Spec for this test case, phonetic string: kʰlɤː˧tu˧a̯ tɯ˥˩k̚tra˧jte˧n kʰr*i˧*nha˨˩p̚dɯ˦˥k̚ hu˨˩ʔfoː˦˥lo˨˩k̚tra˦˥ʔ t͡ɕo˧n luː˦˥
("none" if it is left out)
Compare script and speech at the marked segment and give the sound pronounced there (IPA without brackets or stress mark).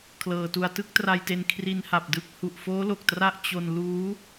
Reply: i˧